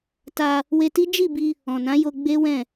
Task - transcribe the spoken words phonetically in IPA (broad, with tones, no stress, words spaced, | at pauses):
ta˧ | we˧ti˦ d͡ʒi˦˨bi˧ | ɔ̃˨nã˨˦jo˧ ɡ͡be˦ wɛ̃˦˨